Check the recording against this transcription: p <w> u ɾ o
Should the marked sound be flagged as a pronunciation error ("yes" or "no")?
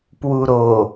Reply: no